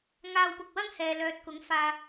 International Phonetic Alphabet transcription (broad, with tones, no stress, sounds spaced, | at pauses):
ŋ aː˧ w p ʊ˨ k̚ w ɐ˥ ŋ h ɛː˨ l œː˨ t̚ k ʊ˨˥ ŋ f aː˨